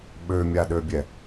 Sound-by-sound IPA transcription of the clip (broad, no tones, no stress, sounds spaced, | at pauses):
ɓ ø mʲ a ɗ ø bʲ ɛ